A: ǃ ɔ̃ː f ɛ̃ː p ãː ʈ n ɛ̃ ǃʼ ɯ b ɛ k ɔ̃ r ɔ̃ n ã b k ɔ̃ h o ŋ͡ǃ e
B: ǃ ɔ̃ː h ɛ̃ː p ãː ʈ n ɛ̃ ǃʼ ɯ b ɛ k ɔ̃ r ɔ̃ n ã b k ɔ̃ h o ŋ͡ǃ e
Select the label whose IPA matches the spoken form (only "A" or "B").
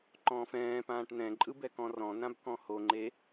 A